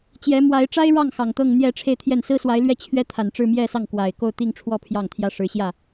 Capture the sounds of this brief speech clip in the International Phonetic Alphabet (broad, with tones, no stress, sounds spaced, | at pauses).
t͡ɕ j ɛ˧˥ m w a˧˥ ɪ̯ ʈ͡ʂ a˥ ɪ̯ ɻ ɑ˥˩ ŋ x ɑ˨˩ ŋ t̪ ɤ˥˧ ŋ n̪ j ɛ˥˧ ʈ͡ʂʰ e˥˧ ɪ̯ t̪ʰ j ɛ˥˩ n s ɹ̩˥ s w a˧˥ ɪ̯ l ɥ ɛ˥˩ t͡ɕʰ ɥ ɛ˥ t̪ʰ a˨˩ n ʈ͡ʂ ɻ̩˥˧ m j ɛ˥˧ s ɑ˥˩ ŋ k w a˨˩ ɪ̯ k o˥˧ ʊ̯ t̪ i˥˧ ŋ ʈ͡ʂʰ w ɔ˥˧ pʰ j ɑ˥˩ ŋ t̪ʰ j ä˥ ʂ ɻ̩˧˥ ɕ j ä˥˩